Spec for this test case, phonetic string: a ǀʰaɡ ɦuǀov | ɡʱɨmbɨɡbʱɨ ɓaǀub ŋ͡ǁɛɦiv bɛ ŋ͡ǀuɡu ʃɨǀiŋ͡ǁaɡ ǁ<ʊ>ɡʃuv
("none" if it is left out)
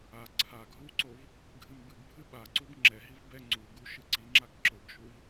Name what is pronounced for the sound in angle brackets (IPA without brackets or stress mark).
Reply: ʊ